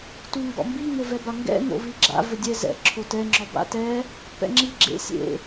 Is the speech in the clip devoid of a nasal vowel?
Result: yes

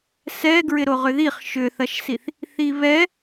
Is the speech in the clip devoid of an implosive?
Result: yes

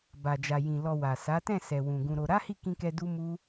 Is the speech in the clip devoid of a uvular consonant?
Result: yes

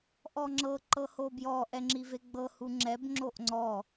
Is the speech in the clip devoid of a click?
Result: no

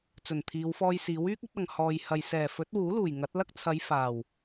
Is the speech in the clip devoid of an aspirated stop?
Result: no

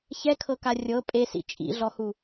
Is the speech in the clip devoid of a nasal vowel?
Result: yes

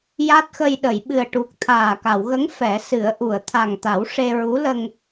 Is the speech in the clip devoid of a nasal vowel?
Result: yes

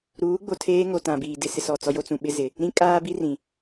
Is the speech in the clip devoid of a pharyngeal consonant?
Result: yes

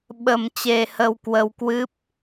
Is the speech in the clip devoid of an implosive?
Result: no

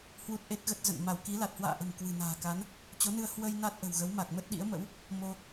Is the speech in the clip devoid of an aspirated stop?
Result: yes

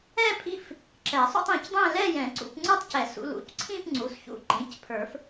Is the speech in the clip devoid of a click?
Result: no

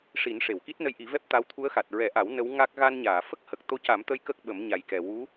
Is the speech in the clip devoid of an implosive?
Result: no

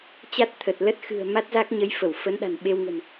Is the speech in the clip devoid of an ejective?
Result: yes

